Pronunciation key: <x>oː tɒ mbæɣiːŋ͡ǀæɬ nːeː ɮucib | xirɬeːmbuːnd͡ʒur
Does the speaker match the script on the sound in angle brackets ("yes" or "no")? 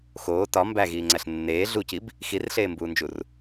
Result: yes